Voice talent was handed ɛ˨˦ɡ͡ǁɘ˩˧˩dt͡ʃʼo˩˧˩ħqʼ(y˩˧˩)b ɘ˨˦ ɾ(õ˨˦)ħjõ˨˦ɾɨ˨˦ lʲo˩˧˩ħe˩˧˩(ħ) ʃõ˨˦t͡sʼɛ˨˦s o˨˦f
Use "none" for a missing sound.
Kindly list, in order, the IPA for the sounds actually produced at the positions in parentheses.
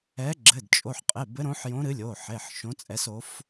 e˩˧˩, õ˨˦, ħ

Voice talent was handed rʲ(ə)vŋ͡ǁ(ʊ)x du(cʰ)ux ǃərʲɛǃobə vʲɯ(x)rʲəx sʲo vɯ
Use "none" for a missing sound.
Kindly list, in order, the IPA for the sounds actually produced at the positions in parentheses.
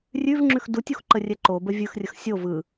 ʉ, ʉ, tʲ, x

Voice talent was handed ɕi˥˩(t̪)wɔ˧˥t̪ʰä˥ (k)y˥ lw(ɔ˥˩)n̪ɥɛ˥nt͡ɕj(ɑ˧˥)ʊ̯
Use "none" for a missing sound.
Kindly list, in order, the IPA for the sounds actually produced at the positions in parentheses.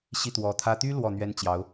t̪, t̪, ɔ˥˩, ɑ˧˥

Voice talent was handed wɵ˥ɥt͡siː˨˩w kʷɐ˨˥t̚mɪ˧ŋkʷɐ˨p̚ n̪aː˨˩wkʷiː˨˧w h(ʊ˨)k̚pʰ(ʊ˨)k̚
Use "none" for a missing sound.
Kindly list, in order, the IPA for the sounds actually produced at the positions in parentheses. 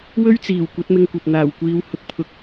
ʊ˨, ʊ˨

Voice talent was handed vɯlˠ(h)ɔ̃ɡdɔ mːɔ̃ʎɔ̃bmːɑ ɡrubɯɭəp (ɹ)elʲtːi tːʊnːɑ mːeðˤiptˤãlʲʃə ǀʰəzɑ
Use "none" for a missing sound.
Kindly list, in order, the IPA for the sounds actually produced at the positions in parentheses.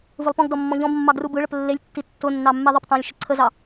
p, lː

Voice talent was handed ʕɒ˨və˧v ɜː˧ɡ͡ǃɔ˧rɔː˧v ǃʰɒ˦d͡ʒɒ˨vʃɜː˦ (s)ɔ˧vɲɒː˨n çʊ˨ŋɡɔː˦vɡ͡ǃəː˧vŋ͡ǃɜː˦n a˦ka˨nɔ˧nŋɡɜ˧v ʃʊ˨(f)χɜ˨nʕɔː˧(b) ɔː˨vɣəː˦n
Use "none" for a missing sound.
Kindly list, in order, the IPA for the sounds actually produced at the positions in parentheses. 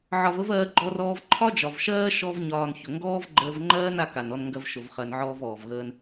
ʃ, v, v

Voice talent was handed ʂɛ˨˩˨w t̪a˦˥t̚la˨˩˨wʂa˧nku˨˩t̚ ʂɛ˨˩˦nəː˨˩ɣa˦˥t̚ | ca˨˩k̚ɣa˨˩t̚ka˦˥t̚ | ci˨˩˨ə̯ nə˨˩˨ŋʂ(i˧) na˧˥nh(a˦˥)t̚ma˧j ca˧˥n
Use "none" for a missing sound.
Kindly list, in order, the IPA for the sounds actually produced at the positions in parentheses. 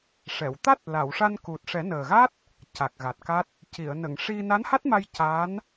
i˧, a˦˥

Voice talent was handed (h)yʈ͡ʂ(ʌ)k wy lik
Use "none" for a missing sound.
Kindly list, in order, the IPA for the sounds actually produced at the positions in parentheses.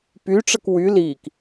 p, ə

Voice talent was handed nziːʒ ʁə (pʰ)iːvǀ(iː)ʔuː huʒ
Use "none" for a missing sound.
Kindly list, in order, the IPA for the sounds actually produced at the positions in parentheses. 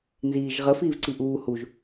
f, i

